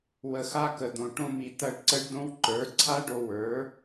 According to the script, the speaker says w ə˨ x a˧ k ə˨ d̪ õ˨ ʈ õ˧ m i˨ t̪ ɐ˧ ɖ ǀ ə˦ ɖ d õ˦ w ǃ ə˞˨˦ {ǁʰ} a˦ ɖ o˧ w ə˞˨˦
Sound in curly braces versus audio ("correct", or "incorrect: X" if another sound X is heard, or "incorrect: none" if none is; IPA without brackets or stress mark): incorrect: ǀʰ